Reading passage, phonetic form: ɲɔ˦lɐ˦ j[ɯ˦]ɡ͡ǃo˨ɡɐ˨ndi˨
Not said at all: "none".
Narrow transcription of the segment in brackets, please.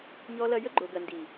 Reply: ə˦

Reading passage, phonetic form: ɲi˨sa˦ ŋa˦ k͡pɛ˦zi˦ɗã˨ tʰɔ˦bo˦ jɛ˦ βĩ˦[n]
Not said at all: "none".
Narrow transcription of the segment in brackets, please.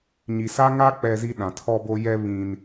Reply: n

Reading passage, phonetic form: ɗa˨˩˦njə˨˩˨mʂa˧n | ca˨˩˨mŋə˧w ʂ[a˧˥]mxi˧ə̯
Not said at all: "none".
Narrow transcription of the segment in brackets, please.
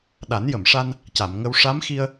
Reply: a˧˥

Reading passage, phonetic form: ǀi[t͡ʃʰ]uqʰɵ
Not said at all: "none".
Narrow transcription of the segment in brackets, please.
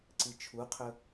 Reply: t͡ʃʰ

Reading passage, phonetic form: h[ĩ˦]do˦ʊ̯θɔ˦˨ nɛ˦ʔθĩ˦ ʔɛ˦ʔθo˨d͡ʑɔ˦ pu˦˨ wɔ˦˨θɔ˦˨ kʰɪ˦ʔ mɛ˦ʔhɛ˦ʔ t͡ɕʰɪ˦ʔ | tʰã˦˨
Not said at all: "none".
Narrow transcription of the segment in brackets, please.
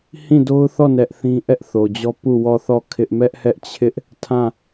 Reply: ĩ˦˨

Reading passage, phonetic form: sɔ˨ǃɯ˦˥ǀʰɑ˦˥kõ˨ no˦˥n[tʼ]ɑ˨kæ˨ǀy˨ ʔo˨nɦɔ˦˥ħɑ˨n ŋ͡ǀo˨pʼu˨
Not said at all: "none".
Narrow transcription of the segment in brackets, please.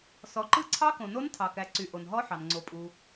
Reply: tʰ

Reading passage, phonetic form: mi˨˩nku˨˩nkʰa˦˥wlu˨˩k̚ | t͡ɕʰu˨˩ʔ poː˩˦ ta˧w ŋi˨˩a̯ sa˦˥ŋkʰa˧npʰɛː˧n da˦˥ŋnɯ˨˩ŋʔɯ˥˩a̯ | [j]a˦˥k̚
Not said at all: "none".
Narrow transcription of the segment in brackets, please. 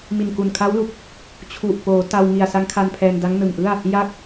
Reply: j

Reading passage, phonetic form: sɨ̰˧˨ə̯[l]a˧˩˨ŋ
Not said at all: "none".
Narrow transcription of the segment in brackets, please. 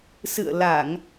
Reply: l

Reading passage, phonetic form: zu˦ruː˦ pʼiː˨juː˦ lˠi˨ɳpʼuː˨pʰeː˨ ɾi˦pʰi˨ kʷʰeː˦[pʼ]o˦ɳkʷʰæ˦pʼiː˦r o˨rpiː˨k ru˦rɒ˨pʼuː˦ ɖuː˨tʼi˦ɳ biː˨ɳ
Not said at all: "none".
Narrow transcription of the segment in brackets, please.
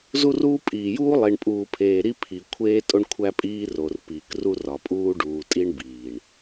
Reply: tʼ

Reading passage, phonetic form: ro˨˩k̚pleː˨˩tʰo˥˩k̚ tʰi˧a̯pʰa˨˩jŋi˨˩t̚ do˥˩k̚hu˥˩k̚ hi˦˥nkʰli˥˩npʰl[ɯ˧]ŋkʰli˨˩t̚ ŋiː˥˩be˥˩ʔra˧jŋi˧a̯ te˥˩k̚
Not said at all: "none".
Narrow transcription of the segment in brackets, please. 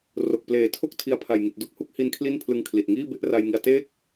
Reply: ɯ˧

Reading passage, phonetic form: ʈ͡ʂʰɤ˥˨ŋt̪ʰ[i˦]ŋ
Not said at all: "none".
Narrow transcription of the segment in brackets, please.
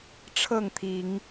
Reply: i˨˦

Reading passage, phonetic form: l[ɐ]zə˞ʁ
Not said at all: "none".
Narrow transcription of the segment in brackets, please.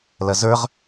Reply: ɐ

